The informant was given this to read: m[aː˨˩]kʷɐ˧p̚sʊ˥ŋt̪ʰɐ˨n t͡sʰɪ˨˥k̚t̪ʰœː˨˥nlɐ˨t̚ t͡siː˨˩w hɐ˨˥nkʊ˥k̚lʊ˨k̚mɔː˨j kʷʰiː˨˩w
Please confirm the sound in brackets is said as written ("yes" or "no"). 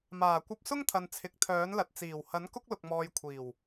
yes